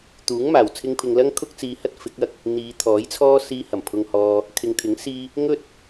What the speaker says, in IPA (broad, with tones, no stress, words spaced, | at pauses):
t̪uː˨˥ŋmaː˨˩w t͡sʰɪ˧ŋpʰɪ˨ŋlɐ˥ŋ kʰʊ˥k̚t͡siː˧hɐ˥t̚fɪ˨˥k̚ ɐ˧k̚ | n̪iː˨˧t̪ʰɔː˨˥jt͡sʰɔː˥ siː˧ hɐ˨˩mpʰʊ˧ŋhɔː˧ | kʰɪ˨ŋt̪ʰɪ˨˥ŋ siː˥ | ŋɵ˥t̚